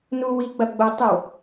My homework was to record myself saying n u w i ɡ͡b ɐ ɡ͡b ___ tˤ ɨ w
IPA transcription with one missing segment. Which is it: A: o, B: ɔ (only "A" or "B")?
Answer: A